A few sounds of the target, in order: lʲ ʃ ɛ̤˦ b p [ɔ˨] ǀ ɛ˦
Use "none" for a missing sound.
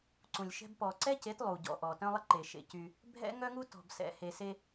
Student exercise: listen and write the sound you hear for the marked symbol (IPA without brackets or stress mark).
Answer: ɔ˨